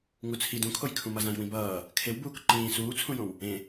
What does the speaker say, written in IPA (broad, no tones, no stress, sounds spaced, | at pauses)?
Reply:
ŋ u t͡sʰ i d ũ kʰ o j kʰ ũ m ʌ z ã j w ĩ b ʌː | kʰ e w b uː k ǃ ĩː s uː t͡sʰ ũ j õ w | ẽ